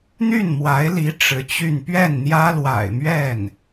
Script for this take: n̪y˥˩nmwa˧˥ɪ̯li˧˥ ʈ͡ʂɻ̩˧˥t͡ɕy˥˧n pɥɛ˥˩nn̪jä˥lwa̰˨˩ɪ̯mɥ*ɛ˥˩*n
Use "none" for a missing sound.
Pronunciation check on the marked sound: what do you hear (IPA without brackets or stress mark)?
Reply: ɛ˥˩